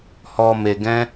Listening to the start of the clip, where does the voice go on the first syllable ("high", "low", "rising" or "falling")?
low